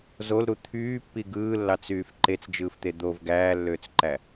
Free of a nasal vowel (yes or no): yes